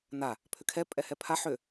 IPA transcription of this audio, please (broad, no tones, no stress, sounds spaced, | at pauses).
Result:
n a | pʰ ʏ kʰ ɛ pʼ ɛ h ɛ pʰ a ħ ʏ